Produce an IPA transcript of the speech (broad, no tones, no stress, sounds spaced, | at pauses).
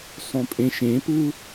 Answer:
sˤ ũ pʼ ẽ ʃ ẽ p ɯ